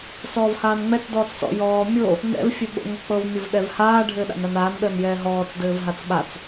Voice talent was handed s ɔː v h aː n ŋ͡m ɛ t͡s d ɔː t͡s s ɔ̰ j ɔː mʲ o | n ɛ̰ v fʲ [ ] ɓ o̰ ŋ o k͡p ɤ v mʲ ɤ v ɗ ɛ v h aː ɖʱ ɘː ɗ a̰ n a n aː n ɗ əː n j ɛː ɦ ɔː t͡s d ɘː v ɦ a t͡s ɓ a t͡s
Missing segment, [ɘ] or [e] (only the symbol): ɘ